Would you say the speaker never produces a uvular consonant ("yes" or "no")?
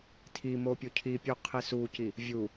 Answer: no